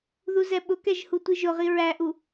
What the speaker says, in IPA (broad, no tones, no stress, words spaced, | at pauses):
ðuzɛɓʊkɛʒ hutʷiʒʊʁi ɹæʔu